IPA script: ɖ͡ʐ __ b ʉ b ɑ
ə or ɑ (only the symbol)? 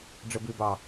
ə